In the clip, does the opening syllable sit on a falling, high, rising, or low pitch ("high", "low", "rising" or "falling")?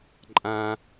high